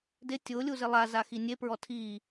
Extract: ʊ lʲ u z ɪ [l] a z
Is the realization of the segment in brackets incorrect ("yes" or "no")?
yes